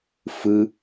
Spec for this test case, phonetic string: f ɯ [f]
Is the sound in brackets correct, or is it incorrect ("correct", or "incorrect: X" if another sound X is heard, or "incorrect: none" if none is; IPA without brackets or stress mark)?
incorrect: none